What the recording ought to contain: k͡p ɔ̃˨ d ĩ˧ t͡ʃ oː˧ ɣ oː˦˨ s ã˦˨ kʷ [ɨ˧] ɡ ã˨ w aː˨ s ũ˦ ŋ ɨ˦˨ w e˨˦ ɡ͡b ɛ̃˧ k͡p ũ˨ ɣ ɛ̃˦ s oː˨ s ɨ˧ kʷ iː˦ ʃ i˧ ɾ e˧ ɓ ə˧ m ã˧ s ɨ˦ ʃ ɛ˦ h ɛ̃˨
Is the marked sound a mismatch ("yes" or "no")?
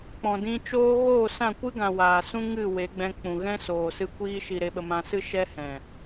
yes